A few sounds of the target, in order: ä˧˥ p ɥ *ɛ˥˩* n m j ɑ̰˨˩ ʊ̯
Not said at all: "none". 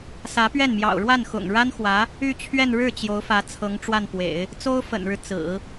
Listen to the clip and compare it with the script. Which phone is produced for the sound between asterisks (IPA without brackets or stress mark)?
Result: ɛ˥˩